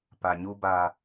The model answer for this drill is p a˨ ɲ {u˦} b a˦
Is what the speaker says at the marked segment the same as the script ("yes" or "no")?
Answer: yes